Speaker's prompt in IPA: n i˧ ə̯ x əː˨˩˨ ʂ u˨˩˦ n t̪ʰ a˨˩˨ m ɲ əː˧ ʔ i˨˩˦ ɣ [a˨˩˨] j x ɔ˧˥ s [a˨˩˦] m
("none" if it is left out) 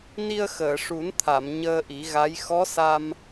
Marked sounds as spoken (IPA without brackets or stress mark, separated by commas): a˧˥, a˧